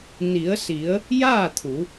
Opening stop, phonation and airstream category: aspirated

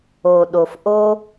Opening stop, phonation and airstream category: implosive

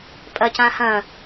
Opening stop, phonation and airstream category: ejective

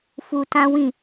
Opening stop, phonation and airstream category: plain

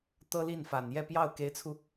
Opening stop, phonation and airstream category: plain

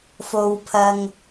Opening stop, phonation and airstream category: aspirated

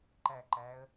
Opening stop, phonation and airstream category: click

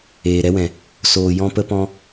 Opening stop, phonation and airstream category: plain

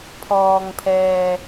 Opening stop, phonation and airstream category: aspirated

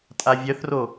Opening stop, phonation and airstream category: ejective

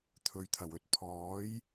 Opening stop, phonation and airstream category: aspirated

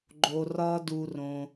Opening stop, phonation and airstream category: click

